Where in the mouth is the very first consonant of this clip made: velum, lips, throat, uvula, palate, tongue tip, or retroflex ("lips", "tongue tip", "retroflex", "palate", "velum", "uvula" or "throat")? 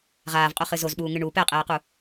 uvula